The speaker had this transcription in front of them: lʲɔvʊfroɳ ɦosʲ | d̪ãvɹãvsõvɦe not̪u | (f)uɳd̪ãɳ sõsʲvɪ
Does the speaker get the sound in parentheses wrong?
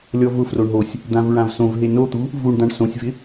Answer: yes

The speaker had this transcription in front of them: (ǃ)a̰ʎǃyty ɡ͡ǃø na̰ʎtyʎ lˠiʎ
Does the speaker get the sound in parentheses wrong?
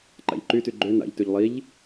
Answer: no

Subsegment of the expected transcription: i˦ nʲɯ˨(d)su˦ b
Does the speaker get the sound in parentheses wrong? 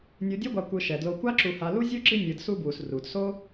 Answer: no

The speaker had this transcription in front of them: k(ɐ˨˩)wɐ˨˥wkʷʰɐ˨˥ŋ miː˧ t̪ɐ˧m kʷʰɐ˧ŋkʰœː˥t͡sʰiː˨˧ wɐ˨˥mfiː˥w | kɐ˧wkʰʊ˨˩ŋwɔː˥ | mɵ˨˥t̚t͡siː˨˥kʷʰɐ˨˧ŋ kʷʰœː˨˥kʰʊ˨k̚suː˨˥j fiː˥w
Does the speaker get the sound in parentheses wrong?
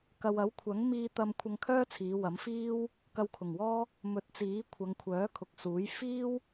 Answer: yes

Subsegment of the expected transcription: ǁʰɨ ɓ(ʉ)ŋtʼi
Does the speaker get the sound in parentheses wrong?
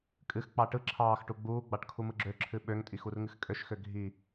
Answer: yes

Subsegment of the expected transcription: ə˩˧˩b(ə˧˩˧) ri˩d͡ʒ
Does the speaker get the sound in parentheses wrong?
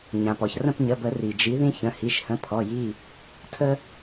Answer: no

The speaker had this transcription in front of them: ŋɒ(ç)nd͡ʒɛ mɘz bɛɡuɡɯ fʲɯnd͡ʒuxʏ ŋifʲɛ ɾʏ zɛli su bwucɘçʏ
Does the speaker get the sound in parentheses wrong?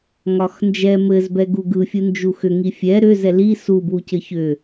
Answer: yes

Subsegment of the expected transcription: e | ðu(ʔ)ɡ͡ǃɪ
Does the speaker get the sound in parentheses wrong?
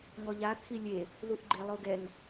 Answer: no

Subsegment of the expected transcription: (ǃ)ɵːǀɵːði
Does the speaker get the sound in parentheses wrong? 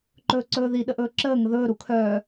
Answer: no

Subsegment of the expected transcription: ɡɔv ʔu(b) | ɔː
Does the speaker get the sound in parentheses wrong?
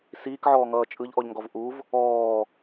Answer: yes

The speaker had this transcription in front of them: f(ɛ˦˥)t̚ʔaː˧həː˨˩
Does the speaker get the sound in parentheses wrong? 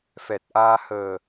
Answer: yes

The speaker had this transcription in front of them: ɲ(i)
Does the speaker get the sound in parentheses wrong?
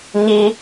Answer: no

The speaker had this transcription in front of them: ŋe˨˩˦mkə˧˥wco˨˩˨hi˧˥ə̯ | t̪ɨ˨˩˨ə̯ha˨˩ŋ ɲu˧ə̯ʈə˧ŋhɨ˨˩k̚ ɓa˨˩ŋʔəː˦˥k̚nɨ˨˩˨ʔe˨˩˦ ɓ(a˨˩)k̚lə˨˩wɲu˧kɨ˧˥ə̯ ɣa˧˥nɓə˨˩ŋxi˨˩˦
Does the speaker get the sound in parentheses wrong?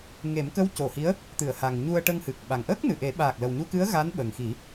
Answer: yes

